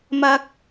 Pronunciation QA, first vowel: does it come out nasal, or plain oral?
oral